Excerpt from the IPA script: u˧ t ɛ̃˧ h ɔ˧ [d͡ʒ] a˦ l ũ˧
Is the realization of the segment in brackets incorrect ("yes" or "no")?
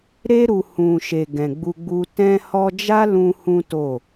no